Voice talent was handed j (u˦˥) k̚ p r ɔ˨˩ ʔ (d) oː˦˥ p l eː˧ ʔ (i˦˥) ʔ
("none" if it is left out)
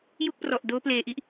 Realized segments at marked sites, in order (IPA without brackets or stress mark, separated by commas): u˥˩, d, i˥˩